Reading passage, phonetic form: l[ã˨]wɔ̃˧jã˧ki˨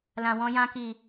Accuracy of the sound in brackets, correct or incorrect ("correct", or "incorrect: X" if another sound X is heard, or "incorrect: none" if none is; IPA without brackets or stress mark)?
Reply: correct